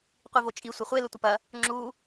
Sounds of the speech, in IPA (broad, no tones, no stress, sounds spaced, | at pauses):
qʷ i v o t͡ʃʼ i sʷ ɐ χʷ e l ə tʷ ə p ɐ | ŋ͡ǁ u